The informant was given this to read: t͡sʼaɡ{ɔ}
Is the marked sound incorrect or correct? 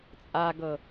incorrect